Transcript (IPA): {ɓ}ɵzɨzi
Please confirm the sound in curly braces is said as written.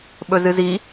yes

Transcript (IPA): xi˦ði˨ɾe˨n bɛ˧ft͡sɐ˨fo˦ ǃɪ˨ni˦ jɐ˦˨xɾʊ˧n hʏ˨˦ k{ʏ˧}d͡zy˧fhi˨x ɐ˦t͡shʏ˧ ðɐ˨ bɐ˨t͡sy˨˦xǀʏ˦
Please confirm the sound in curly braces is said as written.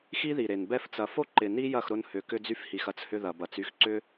yes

